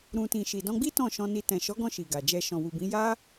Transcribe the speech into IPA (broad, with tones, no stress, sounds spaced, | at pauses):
ɾ ũ˨ t ĩ˨ ʃ i˨ d ɔ̃˧ ɡ͡b i˦ t ɔ̃˦˨ ʃ ɔ̃˧ n i˧ t ɛ̃˨ ʃ ɔ˨˦ ɡ ɔ̃˧ ʃ i˨ ɡ a˨ d͡ʒ ɛ˧ ʃ ɔ̃˨ w u˨ b ĩ˨˦ j a˦